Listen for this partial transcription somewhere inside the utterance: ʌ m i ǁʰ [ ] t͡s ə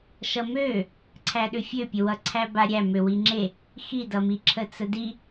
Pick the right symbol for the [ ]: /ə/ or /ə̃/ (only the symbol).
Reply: ə